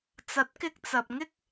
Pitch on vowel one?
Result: rising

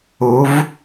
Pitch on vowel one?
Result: rising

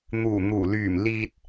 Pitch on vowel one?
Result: low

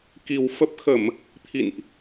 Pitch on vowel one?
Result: low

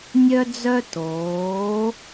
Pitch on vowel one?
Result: high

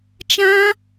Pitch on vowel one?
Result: high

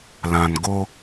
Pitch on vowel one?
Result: low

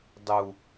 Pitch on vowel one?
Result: low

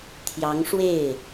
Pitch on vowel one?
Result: rising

